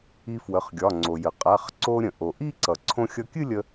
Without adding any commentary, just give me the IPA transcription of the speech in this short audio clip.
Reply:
i˧ f w ə˩˧˩ χ ɡʲ ɒ˩˧˩ ŋ͡ǀ o˩ j ə˩ qʼ a˩˧˩ χ ǀ o˧ ɾʲ ə̃˩ ʔ o˩ ʔ i˥˧ ǀ ʌ˩ ǀʰ õ˧ xʲ ʌ˧ kʲ ɨ˥˧ lʲ ə˧

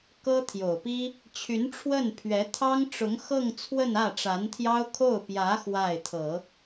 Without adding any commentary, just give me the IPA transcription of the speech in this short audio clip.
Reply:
k ɤ˥ t̪ʰ j o˨˩ ʊ̯ p i˥ | t͡ɕʰ y˧˥ n ʈ͡ʂʰ w ə˥˩ n pʰ ɥ ɛ˧˥ t̪ʰ ɑ˥ ŋ ʈ͡ʂ ʊ˧˥ ŋ x ɤ˥˧ ŋ t͡sʰ w ə˥˧ n ä˥˩ ʈ͡ʂ a˧˥ n t̪ʰ j ɑ˥ ʊ̯ kʰ o˥˩ ʊ̯ p j ä˧˥ x w a˥˩ ɪ̯ t̪ʰ ɤ˨˩˦

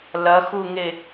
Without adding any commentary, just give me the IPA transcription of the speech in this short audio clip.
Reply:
l ɐ x u ŋ e

